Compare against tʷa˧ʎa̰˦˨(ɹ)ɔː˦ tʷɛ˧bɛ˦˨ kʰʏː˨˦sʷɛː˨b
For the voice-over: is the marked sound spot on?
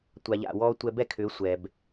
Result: no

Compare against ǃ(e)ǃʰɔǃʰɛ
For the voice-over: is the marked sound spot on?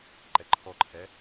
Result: no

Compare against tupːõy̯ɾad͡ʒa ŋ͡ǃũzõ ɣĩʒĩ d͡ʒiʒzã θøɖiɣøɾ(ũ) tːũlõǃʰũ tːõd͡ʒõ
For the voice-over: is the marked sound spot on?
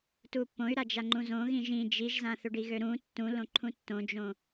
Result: yes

